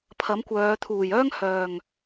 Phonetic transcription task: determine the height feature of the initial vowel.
low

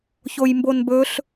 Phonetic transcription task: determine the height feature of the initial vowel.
mid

